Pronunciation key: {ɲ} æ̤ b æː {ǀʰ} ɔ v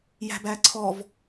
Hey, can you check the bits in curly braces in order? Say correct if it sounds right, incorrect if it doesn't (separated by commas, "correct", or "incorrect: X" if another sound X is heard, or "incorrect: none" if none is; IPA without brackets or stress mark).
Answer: incorrect: j, correct